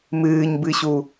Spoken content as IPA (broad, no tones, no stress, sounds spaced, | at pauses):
m ɨː ɲ b ɨ ɕ u